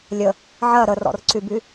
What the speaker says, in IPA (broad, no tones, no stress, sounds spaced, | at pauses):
lʲ ə | ʕ ɜ ɾ ə r ɔ̰ r ǀ y b y